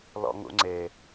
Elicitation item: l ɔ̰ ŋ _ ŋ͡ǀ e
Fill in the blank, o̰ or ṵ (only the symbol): ṵ